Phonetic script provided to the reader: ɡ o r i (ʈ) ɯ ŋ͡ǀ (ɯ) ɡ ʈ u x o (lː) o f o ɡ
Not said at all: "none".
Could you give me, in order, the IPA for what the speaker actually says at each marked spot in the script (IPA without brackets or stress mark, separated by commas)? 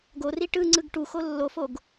ʈ, ɯ, lː